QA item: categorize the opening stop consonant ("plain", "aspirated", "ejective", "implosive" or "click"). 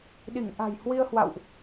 implosive